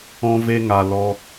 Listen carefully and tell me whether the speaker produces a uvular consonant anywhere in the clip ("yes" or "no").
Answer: no